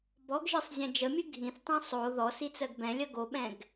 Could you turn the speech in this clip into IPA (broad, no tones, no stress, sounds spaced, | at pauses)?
b ɔ ɡ ʒ ɨ sˤ zʲ ɛ̃ d͡ʒ ə mʲ ɨ ɡʱ ĩ θ tˤ ĩ sˤ o ð ɔ s i t͡s ɜ ɡ b ɛ̃ lʲ ɜ ɡ o ɓ ɛ̃ ɡ